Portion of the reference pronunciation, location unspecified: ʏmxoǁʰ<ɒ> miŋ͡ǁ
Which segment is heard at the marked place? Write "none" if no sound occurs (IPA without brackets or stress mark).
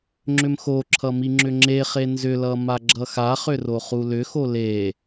ʌ